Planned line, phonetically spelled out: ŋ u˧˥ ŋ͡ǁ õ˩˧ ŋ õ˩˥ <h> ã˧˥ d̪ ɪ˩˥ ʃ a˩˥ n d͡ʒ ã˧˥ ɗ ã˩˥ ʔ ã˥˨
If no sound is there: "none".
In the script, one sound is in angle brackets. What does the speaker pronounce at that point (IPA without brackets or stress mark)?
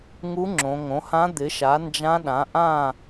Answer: h